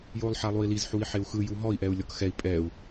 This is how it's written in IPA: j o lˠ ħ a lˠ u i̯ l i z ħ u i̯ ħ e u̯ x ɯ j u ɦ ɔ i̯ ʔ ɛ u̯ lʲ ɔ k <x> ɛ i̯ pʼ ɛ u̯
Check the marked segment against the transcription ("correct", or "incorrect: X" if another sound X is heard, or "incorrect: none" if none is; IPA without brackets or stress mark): correct